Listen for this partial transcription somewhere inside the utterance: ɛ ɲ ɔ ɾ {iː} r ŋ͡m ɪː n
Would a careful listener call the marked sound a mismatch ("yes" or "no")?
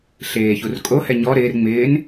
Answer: yes